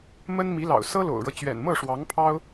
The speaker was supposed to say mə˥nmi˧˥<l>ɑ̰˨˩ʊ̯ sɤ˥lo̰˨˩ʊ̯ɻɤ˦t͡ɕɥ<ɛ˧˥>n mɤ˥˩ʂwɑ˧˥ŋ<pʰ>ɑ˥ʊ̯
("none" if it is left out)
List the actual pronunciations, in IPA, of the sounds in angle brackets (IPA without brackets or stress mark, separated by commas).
l, ɛ̰˨˩, pʰ